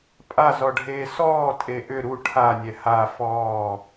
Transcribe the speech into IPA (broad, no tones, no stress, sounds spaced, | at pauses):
pʼ a z ɔ ɖʱ eː s ɔː tʼ e ʔ ʏ ɾ u ʈʰ a nʲ ɛ h a f ɔː